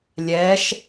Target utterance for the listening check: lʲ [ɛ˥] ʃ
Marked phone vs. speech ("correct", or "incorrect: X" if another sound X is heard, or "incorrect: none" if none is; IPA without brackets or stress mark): incorrect: ɛ˨˥